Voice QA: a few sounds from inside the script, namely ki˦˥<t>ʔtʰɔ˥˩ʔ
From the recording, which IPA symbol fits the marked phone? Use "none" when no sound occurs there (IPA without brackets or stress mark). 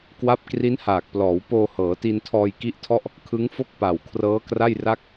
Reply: none